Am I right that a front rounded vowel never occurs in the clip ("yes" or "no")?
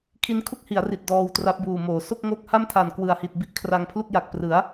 yes